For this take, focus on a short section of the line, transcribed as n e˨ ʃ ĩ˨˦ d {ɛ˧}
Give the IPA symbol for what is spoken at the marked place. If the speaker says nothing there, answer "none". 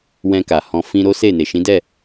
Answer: ɛ˦˨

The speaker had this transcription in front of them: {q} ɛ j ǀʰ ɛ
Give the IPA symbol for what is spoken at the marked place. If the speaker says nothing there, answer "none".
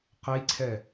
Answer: q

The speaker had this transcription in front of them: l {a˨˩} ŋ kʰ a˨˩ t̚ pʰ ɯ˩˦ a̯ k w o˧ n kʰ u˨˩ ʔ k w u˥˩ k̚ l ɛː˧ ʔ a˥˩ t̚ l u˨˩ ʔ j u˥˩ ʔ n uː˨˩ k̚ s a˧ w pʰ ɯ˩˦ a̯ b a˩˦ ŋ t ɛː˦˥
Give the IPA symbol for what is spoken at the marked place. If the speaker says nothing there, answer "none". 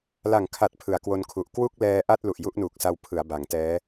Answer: a˨˩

